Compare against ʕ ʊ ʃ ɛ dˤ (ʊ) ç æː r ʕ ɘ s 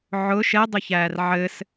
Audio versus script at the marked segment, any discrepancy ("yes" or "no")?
no